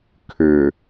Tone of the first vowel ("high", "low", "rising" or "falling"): low